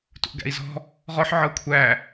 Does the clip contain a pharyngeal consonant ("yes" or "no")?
yes